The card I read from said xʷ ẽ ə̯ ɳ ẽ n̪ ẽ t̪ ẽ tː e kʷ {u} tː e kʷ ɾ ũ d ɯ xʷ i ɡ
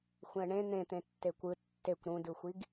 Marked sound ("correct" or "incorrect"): incorrect